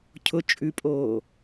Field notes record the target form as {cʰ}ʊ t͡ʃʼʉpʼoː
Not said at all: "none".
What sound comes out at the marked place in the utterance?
cʰ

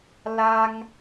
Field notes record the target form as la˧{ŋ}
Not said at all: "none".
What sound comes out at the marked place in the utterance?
ŋ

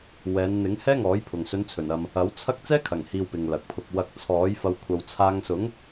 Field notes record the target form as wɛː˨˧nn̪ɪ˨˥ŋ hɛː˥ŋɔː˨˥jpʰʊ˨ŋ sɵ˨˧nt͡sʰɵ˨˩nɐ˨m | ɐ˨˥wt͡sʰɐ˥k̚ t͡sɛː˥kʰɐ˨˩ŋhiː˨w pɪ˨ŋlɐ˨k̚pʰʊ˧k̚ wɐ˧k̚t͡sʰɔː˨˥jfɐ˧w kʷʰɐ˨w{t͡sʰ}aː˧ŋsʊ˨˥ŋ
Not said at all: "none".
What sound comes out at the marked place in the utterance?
t͡sʰ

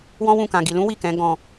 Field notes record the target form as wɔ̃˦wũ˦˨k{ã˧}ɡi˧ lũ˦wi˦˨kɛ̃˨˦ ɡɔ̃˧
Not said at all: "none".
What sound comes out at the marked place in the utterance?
ã˧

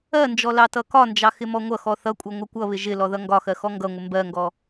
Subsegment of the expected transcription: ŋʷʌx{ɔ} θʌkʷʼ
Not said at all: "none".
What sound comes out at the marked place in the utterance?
ɔ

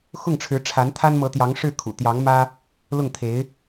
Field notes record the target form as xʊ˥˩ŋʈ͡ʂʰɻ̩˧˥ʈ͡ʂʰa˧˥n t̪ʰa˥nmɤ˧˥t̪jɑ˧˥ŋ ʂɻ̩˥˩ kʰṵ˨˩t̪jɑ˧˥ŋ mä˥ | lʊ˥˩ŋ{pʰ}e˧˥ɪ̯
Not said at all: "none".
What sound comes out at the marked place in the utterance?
t̪ʰ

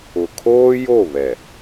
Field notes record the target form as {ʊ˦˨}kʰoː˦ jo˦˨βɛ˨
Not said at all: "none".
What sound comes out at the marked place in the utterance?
ʊ˨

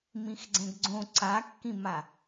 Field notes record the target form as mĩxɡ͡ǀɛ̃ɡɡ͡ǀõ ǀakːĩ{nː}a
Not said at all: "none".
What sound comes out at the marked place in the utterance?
m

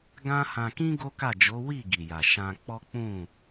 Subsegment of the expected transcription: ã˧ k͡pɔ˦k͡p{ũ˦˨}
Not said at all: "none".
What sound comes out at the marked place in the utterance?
ũ˦˨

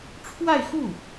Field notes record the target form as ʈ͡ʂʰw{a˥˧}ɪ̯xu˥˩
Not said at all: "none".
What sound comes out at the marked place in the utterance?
a˥˧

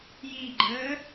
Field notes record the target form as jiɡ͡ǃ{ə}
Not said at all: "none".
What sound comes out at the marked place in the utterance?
əː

